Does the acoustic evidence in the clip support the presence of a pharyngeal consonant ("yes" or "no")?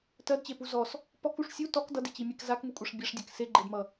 no